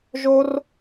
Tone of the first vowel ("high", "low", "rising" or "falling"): high